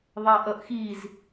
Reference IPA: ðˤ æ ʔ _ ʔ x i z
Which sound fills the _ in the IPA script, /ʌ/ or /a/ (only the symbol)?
ʌ